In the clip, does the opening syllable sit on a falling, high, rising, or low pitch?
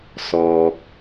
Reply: low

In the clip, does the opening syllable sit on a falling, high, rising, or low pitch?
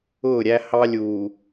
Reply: falling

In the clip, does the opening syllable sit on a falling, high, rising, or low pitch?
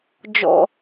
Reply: low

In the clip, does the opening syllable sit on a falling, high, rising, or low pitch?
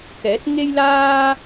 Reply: rising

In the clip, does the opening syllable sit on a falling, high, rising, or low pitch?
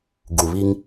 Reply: low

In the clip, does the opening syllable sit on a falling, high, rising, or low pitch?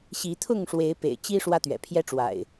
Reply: rising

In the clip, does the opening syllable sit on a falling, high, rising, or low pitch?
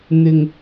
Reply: low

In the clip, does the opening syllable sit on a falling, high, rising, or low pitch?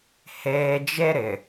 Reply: low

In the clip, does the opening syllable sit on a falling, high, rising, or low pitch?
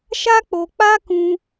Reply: high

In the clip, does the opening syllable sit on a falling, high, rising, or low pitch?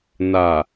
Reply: low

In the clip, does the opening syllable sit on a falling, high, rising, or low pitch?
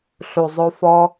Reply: low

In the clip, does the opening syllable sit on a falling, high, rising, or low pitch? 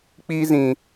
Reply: high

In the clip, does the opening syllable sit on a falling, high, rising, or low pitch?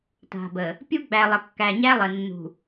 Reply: low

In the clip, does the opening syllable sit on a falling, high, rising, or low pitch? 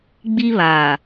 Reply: high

